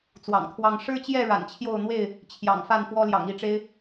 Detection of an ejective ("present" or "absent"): absent